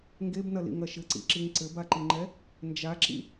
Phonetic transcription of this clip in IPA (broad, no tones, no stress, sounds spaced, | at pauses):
ŋ ɡ e b n ɐ l ḭ ŋ ɐ ʃ ɘ ǀ ḭ ǁ i ŋ ǀ ɘ b a ǃ i ŋ͡ǃ ɛ | n d͡ʒ a ǁ ḭ